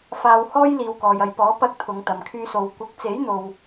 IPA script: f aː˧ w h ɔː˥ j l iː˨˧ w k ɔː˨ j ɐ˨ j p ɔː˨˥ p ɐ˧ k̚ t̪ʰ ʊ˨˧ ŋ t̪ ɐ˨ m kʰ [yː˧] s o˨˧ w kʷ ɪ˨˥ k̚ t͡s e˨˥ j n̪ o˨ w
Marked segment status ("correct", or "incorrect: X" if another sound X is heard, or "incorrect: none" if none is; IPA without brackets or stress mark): correct